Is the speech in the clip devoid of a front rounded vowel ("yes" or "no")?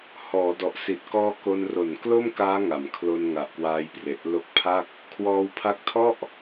yes